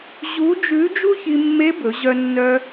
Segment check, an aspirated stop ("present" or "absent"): absent